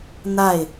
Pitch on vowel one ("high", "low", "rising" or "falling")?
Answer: falling